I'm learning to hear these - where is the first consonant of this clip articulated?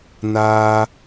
tongue tip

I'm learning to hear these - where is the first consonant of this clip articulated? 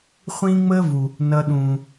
uvula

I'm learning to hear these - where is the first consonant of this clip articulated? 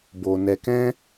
lips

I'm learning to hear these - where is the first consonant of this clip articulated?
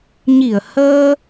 palate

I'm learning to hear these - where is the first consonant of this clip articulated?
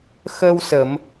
velum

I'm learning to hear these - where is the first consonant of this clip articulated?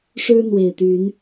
retroflex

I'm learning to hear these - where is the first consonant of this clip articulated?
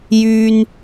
palate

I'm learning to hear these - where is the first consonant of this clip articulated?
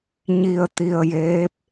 palate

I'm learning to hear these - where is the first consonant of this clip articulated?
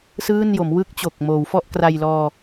tongue tip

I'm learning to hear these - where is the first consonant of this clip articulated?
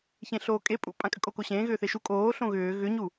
palate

